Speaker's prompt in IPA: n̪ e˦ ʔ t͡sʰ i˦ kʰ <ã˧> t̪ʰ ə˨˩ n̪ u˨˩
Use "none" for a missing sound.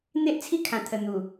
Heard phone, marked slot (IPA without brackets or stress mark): ã˨˩